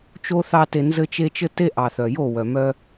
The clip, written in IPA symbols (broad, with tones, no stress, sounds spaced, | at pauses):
t͡ʃ o˦ θ ɑ˦ t e˧ n z ɘ˦ t͡ʃ e˦ t͡ʃ ɘ˦ t e˦ ʔ ɑ˨ θ œ˨ j o˦˨ w œ˨ m œ˦